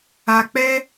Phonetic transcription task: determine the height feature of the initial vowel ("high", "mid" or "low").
low